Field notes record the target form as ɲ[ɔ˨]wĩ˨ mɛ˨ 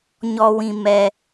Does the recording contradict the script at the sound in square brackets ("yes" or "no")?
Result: no